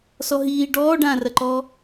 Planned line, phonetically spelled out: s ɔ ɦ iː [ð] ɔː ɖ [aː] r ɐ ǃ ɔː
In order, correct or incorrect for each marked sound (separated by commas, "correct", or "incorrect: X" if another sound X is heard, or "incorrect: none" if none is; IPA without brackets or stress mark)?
incorrect: ɖ, incorrect: ãː